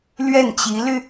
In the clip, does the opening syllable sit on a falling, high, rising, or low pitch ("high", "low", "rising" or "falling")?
falling